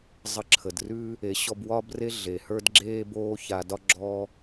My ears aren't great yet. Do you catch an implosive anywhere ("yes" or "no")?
no